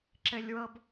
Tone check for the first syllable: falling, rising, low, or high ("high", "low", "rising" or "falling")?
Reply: high